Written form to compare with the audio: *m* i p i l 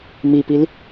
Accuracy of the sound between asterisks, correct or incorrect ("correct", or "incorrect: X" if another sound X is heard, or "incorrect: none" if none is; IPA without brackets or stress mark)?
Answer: correct